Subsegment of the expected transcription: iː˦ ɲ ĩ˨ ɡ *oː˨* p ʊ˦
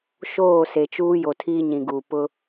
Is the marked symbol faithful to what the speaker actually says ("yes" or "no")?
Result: no